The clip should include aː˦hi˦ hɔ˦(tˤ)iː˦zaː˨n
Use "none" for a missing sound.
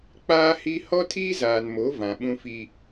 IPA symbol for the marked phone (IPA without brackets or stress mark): tʰ